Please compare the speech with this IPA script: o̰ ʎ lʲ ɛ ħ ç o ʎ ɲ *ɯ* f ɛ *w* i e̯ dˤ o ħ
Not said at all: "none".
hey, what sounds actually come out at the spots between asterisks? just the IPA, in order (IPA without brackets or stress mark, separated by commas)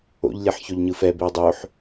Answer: ɯ, b